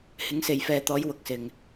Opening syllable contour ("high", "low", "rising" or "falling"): rising